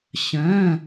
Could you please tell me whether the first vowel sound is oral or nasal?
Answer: nasal